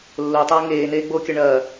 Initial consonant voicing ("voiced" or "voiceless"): voiced